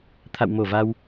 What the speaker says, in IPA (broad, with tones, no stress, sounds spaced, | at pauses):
t̪ʰ a̰˧˨ w m o˧˩ v a˧ w